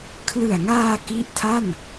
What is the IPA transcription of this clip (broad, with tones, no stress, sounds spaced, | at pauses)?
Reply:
kʰ l ɯ˨˩ a̯ ŋ aː˧ k i˦˥ ʔ tʰ a˥˩ n